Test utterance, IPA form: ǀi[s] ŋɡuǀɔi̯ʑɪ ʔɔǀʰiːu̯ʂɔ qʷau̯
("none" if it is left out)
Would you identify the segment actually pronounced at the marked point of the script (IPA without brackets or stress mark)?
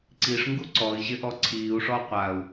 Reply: ʂ